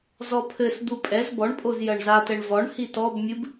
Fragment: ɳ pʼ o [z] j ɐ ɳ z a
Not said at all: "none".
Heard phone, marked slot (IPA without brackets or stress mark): z